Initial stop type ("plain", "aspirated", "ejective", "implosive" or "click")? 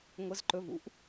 click